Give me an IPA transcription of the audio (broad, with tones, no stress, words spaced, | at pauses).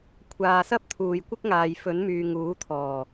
kʷʰaː˨sɐ˥p̚ t̪ʰuː˨jkʷɪ˥k̚ ŋaː˨jfɵ˨˥nmyː˨ ŋuː˨˥t̪ʰɔː˨˩